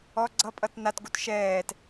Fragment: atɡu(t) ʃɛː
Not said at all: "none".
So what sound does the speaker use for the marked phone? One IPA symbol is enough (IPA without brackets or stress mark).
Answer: t